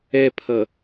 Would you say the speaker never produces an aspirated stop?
no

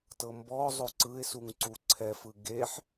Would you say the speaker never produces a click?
no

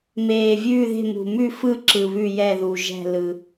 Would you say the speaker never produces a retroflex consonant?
yes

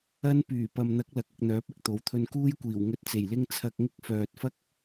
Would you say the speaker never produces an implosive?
yes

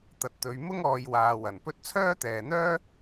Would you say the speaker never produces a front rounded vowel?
no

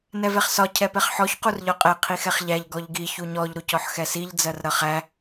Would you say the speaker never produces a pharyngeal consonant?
no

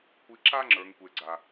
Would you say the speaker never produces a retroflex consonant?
yes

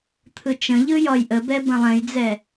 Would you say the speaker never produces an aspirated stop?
no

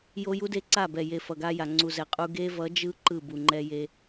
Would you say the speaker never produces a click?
no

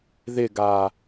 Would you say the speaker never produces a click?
yes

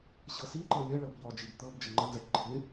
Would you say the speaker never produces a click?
no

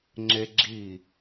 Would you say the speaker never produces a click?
no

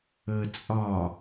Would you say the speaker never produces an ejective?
no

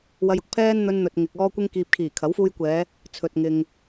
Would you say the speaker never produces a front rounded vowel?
yes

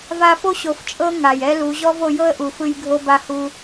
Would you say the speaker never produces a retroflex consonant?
yes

